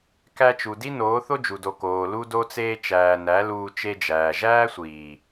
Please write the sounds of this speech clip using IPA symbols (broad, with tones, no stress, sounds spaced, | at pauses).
k æ˧ t͡ʃ u˨ d i˦ n oː˨˦ θ o˦ d͡ʒ u˨ d o˨ k oː˨ l u˦ d o˦ t͡s eː˦ t͡ʃ æː˧ n æ˨˦ l uː˧ t͡ʃ e˧ d͡ʒ æː˨ ʒ æː˦ sʷ iː˨